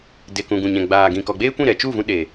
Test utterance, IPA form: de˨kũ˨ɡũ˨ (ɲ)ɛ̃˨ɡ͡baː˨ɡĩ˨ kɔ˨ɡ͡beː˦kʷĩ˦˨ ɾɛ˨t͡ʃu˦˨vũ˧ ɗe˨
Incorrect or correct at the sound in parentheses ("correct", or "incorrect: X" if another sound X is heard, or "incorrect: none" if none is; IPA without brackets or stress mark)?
correct